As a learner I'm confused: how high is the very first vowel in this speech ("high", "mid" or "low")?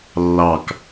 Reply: low